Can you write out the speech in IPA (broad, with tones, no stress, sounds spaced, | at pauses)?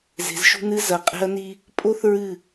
z e̤˨ z ʃ ṳ˦ n ɨ˦ z ɐ˨ qʼ e̤˦ ɐ̯ n i˦ | pʼ o˦ θ ɹ ɨ˦˨